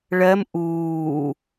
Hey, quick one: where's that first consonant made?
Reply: retroflex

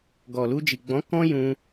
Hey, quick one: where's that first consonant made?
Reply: velum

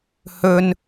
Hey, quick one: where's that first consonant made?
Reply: throat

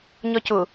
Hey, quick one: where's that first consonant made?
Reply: palate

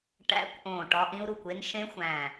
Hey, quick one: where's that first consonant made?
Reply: retroflex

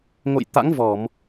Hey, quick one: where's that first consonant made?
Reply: velum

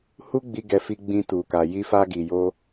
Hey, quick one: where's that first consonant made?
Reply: throat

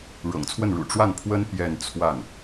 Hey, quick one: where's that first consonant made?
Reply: retroflex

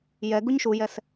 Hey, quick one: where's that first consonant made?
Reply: palate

